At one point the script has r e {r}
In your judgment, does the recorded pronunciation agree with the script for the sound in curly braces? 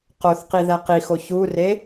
no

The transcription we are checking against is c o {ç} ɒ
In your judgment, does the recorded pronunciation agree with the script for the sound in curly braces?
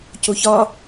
yes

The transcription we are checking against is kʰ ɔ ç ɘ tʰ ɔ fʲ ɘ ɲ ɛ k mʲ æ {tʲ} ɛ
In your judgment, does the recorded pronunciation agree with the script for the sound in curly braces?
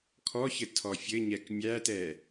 no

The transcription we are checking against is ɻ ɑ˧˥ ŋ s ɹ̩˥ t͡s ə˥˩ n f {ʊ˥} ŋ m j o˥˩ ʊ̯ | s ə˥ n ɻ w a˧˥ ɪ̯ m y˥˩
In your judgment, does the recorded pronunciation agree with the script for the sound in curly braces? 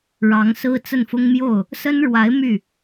yes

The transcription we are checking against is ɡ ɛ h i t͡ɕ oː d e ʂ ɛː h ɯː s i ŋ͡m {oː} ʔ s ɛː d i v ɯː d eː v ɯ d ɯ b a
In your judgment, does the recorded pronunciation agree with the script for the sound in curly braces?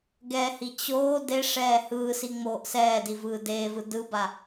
yes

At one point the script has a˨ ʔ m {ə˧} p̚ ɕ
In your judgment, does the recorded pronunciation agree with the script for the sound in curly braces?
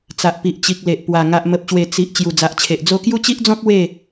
no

